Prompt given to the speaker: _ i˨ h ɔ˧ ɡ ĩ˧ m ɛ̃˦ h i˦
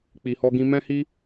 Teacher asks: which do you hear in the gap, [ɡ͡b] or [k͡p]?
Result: k͡p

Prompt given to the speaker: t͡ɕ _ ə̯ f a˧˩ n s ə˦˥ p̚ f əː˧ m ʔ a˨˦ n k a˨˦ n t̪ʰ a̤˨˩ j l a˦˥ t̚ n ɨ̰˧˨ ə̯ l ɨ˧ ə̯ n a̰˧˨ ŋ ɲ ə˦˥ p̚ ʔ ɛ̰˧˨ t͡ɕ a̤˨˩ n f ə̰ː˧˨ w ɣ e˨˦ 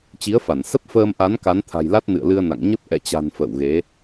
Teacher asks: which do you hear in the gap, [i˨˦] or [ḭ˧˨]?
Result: i˨˦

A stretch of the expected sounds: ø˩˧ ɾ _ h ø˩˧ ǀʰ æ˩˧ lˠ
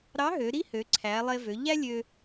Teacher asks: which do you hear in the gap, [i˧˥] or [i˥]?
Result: i˥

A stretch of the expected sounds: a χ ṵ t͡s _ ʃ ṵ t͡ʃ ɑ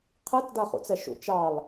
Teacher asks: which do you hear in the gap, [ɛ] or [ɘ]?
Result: ɛ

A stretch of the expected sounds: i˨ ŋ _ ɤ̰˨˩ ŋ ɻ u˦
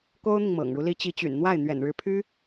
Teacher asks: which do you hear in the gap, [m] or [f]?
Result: m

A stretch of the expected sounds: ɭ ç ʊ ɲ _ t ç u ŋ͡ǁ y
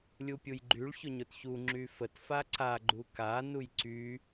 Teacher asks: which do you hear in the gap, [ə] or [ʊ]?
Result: ʊ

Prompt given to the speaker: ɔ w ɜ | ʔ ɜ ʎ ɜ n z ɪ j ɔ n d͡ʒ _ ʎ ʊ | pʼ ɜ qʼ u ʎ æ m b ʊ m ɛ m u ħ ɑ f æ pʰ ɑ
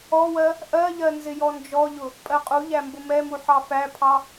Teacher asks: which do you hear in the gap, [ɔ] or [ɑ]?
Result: ɔ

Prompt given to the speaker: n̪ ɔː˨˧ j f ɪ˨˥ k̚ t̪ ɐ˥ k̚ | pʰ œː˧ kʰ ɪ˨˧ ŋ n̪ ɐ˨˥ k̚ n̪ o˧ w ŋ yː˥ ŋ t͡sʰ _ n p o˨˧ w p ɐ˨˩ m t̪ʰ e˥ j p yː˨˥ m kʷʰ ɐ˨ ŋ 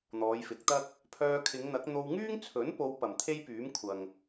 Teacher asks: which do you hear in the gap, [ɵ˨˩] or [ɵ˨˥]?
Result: ɵ˨˥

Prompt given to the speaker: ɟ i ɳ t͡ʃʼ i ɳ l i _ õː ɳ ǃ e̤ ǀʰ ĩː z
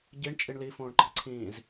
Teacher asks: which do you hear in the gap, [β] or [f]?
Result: f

